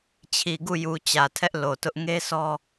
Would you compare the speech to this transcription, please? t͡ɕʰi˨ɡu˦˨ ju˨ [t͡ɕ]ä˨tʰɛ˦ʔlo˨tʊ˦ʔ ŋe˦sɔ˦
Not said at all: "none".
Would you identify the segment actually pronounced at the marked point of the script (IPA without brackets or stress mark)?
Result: t͡ɕ